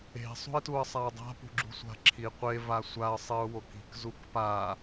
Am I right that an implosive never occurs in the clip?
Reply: yes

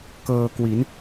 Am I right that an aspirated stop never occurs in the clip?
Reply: yes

